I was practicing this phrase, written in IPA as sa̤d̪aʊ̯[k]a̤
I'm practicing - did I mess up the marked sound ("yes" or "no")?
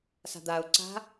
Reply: yes